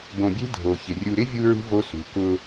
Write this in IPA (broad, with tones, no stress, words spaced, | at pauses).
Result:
bõ˨bʲe̤˦ dʱo˨çɪ˨ rʲu˨ɾɪ˦ vʲu˦ɹṳ˦ vo˦sṳ˨ kʊ˦